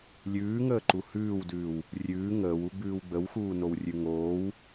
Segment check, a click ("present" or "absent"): present